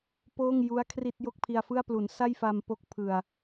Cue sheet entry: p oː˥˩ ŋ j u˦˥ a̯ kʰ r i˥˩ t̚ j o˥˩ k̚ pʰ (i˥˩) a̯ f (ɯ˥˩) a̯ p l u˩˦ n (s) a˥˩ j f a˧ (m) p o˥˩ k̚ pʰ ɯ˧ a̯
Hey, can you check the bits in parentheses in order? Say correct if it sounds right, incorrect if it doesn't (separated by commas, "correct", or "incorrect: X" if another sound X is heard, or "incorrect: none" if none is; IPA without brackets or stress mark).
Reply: incorrect: i˧, correct, correct, correct